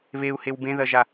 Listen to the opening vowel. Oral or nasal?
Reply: oral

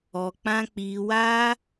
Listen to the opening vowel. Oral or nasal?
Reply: oral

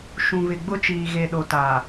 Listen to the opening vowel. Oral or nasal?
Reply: nasal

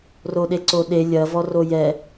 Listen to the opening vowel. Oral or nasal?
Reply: oral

